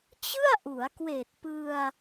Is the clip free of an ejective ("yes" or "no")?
yes